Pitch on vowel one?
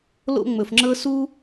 high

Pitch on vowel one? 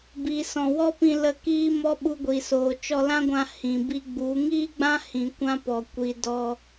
low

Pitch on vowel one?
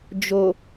low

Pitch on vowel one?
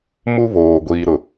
high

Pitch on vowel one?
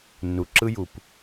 low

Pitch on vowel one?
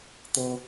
high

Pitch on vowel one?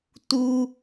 high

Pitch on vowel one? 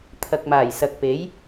low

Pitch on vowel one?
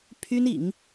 high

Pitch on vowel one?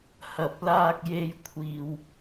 low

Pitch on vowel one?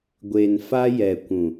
low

